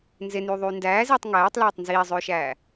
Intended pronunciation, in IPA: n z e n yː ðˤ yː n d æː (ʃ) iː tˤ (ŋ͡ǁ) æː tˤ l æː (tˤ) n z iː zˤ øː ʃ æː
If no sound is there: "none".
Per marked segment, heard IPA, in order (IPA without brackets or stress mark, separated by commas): z, ŋ, tˤ